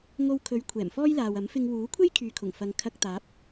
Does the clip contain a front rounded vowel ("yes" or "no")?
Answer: yes